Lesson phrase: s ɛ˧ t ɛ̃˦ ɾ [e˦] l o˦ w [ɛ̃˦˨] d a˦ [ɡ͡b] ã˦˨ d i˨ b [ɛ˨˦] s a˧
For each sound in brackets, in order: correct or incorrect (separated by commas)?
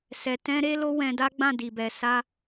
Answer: correct, incorrect, correct, incorrect